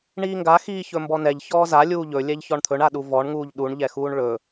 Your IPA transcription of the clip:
ɳ iː ŋ ɡ a x iː ç ɵ m b ɔ n ɛ ʎ ç ɔː z a lʲ uː ʎ ɵ lʲ ɛ ʎ ç ɔ ɳ t̪ʰ ɵ ɳ a ɗ u v ɔ ɳ ŋ uː ʎ ɗ u ɳ ʎ ɛ x uː ɳ ɭ ɵ

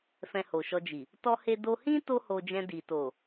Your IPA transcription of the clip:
f ɛ̃˧ h o˨ ʃ ɔ˧ d͡ʒ i˨ | t ɔ˦ h e˦ d o˧ h ĩ˦ t o˦ h o˧ d͡ʒ ɛ̃˧ d i˨ t o˨

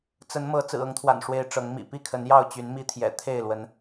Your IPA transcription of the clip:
t͡s ə˨˦ n m ɤ˨˦ t͡s ɹ̩˨˩ ɤ˨˦ ŋ t̪ʰ w a̰˨˩ n ʂ w e˨˦ ɪ̯ ʈ͡ʂ ɤ˨˦ ŋ m ḭ˨˩ p i˥˨ kʰ ə˨˦ n j ɑ˥˨ ʊ̯ t͡ɕ y˨˦ n m i˦ t̪ʰ j ɛ̰˨˩ t̪ʰ e˥˨ ɪ̯ l w ə˨˦ n

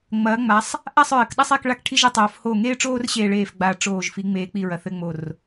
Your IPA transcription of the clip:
ŋ͡m ɐː˩˧ ŋ͡m a˩˧ sˤ | ʔ a˦˨ sˤ ɹ ɘ˩˧ k ɗ ɐ˦ sˤ e˦˨ k ɭ a˦˨ k ʈʰ i˦ ʒ e˩˧ tˤ oː˩˧ f h o˨˩ ŋ eː˦ ʈ͡ʂ oː˦ r ɕ eː˨˩ ɭ eː˨˩ f ɡ͡b a˨˩ ʈ͡ʂ oː˨˩ ʒ f i˩˧ ŋ͡m eː˩˧ k͡p i˨˩ ɹ ɐ˩˧ θ ɘ˦˨ ŋ͡m o˨˩ r

